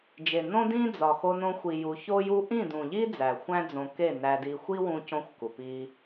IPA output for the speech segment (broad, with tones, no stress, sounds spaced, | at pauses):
d͡ʒ e˨ n õ˦ d ĩ˦ d͡z ɒ˨ x o˧ n õ˧ xʷ i˨ j u˧ ç o˦ j u˦ ʔ ĩ˦˨ d ũ˨ ʎ i˦ d͡z æ˨ xʷ æ̃˦ d͡z õ˧ k e˦˨ n æ˧ d i˧ xʷ i˦ w ũ˧ c õ˦ xʷ k u˨ p i˦